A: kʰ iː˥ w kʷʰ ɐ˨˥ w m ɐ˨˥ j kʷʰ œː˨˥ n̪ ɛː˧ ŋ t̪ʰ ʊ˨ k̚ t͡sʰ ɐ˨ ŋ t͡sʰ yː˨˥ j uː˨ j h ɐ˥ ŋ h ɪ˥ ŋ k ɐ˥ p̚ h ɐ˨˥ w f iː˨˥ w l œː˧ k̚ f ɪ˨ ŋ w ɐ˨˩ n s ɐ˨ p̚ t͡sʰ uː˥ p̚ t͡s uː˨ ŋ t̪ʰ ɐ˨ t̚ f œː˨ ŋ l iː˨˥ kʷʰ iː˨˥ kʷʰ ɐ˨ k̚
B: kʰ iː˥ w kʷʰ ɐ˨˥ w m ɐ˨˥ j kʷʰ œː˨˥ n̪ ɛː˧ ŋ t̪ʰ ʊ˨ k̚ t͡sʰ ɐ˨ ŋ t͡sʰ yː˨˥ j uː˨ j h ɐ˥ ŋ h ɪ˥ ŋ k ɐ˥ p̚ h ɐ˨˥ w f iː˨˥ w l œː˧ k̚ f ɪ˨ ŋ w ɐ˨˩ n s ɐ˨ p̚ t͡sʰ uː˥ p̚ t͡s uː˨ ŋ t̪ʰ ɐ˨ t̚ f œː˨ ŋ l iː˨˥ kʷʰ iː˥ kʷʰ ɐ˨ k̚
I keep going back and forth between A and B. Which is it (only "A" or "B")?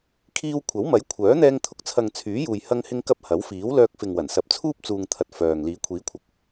A